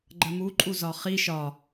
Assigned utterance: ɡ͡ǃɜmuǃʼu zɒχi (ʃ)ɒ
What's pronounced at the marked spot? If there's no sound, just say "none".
ʃ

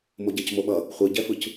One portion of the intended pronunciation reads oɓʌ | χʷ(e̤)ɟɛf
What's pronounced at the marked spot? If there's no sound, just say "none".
e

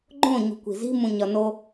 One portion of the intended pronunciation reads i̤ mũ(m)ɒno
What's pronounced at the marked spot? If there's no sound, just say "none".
ɲ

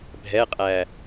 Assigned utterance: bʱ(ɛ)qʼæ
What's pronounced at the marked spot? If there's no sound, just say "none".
ɛ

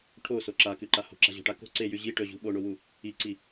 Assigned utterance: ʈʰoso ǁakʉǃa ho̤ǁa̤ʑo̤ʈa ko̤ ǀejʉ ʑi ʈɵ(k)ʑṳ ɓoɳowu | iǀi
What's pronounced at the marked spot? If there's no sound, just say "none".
none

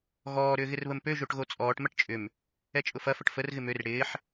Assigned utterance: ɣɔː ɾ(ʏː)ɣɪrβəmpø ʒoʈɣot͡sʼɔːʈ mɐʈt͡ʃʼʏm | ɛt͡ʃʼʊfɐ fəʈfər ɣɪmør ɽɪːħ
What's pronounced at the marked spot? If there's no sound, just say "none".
ʏː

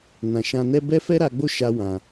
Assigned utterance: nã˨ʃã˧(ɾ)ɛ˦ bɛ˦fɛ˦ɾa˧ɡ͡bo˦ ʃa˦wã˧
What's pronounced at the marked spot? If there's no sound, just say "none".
n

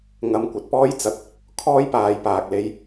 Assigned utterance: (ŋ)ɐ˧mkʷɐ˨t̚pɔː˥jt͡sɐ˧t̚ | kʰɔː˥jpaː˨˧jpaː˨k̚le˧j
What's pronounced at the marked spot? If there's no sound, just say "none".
ŋ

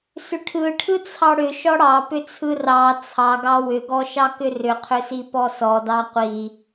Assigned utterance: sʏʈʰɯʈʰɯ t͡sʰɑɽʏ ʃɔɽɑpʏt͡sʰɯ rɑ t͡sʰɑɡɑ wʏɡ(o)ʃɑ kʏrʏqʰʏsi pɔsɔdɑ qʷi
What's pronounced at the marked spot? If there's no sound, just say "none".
ɔ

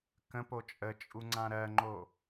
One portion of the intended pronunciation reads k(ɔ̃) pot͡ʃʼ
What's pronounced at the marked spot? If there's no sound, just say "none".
ə̃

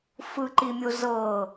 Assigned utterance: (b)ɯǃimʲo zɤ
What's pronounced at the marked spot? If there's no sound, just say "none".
f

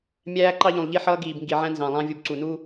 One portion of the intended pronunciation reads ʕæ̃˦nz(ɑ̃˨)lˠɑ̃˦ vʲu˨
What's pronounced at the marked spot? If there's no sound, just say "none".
ɑ̃˨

